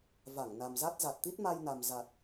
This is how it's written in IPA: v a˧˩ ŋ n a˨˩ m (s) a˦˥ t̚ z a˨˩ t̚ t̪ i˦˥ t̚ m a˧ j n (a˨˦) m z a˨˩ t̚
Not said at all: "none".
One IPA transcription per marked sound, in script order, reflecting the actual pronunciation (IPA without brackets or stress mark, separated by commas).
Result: z, a˨˩